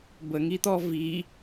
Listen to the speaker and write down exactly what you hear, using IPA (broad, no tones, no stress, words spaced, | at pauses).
bəŋit̪ɔ vi